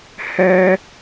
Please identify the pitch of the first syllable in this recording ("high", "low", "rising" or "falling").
high